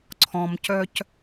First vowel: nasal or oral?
nasal